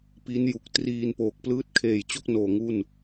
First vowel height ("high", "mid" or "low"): high